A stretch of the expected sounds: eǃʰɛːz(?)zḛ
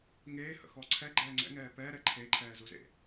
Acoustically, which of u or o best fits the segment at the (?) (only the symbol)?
u